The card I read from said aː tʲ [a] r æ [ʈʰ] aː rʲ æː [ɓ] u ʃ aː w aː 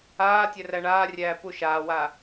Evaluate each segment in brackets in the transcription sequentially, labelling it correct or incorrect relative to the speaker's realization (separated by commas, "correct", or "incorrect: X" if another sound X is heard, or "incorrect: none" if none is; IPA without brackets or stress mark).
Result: incorrect: æ, incorrect: ɳ, incorrect: p